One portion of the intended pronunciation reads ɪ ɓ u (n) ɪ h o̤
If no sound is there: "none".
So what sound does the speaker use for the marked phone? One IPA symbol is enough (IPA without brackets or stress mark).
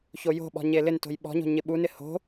n